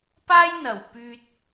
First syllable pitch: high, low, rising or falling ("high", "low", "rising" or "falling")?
high